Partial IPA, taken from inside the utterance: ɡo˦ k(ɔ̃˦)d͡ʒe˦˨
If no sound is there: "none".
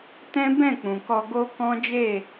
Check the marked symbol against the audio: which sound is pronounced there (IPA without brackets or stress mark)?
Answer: ɔ̃˦